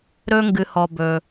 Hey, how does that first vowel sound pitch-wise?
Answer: high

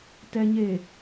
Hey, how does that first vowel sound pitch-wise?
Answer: low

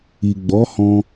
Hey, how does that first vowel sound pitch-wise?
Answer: low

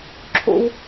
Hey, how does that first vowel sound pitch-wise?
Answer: high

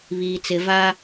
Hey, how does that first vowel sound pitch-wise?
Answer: low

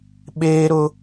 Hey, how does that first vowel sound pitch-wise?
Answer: high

